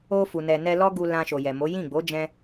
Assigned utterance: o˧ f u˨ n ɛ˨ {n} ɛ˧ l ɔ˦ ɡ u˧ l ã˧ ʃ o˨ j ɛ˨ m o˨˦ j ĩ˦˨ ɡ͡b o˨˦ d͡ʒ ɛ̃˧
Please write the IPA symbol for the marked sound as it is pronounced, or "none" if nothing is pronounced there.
n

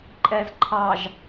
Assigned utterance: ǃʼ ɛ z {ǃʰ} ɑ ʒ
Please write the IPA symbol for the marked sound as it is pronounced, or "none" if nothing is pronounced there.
ǃʰ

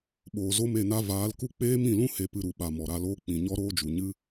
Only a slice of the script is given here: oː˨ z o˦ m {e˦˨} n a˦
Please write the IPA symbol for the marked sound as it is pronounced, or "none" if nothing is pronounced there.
e˦˨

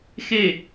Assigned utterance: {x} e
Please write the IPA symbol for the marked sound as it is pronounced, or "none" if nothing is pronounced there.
x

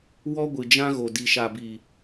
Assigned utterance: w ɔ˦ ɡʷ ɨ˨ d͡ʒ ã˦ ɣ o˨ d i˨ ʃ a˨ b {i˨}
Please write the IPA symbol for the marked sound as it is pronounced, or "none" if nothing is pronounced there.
i˨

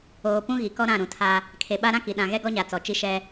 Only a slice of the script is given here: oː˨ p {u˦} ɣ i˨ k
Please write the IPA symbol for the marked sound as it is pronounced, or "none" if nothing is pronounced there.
ũ˦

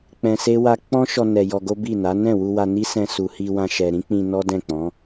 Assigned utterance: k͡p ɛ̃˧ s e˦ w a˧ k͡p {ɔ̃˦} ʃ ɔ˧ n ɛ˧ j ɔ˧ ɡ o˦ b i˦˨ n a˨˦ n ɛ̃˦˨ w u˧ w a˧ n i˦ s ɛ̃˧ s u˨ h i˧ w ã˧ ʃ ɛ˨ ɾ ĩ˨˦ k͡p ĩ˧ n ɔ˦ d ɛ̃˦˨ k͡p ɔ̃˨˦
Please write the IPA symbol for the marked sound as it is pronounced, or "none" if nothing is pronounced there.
ɔ̃˦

